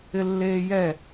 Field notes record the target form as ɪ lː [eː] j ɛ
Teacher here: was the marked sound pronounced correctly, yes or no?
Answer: yes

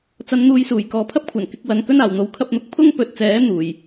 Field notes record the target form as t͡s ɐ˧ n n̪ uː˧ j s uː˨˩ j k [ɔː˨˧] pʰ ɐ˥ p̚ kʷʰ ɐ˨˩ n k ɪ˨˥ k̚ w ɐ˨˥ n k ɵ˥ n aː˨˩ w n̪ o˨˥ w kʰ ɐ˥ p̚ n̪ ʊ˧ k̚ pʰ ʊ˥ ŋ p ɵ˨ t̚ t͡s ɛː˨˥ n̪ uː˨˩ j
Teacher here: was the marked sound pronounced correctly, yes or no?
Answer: no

